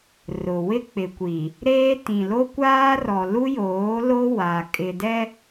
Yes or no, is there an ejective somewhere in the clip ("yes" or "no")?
yes